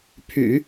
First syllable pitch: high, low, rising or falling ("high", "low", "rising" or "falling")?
low